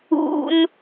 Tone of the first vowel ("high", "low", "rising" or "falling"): high